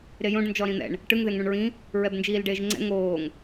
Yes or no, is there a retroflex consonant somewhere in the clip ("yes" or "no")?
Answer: yes